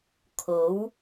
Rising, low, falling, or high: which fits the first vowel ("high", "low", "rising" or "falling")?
rising